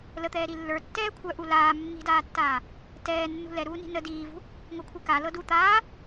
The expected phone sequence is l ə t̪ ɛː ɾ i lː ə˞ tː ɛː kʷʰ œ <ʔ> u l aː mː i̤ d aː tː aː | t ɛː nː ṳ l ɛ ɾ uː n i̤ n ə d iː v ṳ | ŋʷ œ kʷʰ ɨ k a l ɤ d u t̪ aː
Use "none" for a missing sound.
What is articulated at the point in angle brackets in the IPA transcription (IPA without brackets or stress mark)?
ʔ